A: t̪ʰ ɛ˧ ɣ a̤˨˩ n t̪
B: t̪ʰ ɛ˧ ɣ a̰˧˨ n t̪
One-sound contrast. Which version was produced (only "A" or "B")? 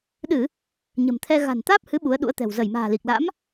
A